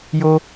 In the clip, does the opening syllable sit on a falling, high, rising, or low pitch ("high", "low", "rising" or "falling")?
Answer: high